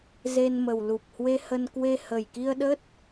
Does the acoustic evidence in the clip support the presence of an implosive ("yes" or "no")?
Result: yes